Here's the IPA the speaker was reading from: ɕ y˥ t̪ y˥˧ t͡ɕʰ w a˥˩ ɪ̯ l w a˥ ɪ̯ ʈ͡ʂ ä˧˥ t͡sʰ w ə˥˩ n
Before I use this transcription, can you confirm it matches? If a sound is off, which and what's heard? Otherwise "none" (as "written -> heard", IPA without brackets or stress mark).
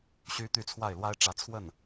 t͡ɕʰ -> t͡sʰ